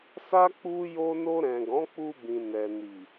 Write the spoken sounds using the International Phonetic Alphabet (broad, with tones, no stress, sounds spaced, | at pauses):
s a˦ k͡p u˦ j o˦ n o˧ ɾ ɛ̃˨ ɡ ɔ̃˨˦ k͡p u˧ b ĩ˨ n ɛ˨ n i˨